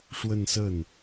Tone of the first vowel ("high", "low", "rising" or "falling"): falling